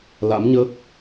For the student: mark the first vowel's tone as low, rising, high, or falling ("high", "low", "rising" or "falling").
rising